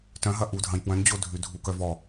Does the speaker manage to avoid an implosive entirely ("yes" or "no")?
yes